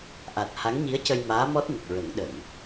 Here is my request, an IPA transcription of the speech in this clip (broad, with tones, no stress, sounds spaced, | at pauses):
ʔ a˨˩ t̚ h a˧˥ ŋ ɲ i˧˥ ə̯ c ə˧ j m aː˧˥ m ɔ˦˥ t̚ n ə˨˩ k̚ ɹ ə˨˩˦ ŋ ɗ ə˨˩˨ ŋ